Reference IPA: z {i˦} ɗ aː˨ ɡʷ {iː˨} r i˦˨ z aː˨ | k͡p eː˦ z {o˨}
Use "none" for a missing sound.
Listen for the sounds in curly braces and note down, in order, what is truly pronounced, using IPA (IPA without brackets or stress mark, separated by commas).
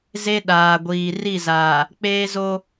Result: e˦, iː˨, o˦